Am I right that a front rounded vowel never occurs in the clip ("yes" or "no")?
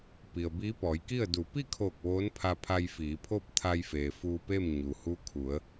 yes